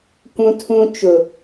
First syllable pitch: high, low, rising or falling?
high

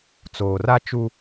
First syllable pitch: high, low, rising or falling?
low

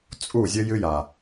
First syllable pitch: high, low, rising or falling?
falling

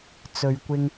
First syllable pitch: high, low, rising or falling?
low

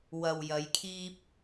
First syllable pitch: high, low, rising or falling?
low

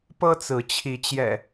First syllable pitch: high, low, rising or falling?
high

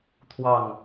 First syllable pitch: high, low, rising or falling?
falling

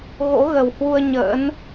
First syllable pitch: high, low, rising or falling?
rising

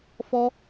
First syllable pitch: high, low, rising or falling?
high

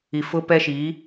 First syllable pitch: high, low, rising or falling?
low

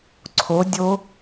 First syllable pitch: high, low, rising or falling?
rising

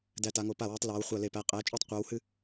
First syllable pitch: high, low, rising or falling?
falling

